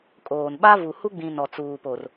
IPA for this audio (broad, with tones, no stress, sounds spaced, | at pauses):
kʼ oː˨ n ɓ a˦ v u˨ h u˦ ɡ͡b ĩ˨ n ɔ˨ t͡s uː˨ p o˨ r